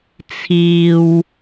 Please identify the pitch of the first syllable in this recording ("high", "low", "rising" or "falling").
low